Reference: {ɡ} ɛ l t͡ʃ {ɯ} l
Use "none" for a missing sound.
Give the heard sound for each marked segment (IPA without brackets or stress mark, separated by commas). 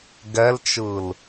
ɡ, ɯ